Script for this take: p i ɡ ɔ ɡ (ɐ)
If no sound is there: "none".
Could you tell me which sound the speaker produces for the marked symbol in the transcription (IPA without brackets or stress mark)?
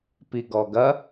ɐ